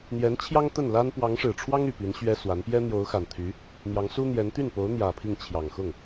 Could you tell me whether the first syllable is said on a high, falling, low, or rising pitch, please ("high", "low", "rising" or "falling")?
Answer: rising